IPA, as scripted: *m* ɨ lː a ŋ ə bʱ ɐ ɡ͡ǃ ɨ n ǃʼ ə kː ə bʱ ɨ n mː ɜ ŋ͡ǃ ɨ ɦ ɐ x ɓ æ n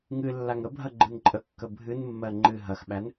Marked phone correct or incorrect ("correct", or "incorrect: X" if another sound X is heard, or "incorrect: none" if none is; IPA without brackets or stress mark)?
incorrect: ŋ